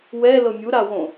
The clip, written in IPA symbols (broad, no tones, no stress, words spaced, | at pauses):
wɛ lɤmʲu ɾawõ